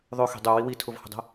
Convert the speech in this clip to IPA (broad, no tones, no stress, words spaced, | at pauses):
ðˤøxi̤ dˤøwi witʰʊvhə̤dˤə̤